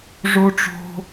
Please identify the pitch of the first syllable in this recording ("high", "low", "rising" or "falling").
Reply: high